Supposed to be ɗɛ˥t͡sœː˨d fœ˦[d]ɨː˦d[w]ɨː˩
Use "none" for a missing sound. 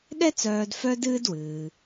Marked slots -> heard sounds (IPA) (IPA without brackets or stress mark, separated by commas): d, w